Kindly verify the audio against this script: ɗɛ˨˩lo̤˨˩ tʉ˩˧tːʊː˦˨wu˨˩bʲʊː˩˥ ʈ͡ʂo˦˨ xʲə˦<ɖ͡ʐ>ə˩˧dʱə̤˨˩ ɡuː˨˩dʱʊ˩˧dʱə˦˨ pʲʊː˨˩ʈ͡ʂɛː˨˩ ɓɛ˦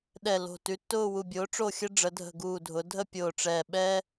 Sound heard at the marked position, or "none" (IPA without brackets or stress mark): ɖ͡ʐ